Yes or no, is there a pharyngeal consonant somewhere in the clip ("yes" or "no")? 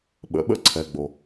no